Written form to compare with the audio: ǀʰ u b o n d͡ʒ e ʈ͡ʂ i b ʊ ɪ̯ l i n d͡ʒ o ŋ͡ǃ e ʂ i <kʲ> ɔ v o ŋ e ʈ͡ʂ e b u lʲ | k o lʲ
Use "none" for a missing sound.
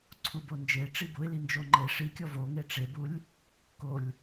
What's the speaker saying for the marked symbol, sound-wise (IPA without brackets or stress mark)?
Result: kʲ